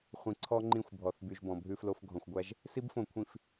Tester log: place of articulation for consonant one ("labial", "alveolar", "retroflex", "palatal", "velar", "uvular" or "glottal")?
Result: uvular